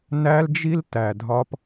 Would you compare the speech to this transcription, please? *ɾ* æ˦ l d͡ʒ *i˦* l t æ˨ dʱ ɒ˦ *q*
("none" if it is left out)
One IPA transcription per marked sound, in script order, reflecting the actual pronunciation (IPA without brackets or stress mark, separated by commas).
n, i˦, p